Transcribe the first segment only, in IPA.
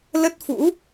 l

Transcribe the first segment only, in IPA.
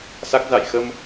s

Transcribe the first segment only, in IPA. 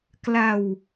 k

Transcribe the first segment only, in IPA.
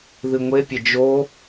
ð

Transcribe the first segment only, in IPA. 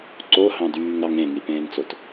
ǀ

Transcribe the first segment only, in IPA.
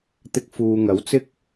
t̪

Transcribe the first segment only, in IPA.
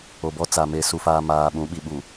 o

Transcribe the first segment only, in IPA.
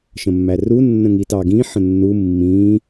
ʃ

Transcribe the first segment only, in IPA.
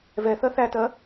v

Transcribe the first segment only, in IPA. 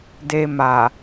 d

